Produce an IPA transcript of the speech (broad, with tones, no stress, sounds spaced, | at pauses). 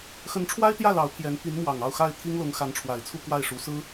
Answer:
x ə˧˥ n ʈ͡ʂʰ w a˥ ɪ̯ t̪ j ä˥˩ l ɑ˧˥ ʊ̯ pʰ j ɛ˧˥ n p i˧˥ n m w ɑ˨˩ ŋ ɑ˥˧ ʊ̯ x a˥˩ ɪ̯ t̪ʰ i˥ ŋ l ʊ˧˥ ŋ x a˧˥ n ʈ͡ʂʰ w a˨˩ ɪ̯ t͡sʰ u˥˧ k w a˥˩ ɪ̯ ʂ u˧˥ s ɹ̩˥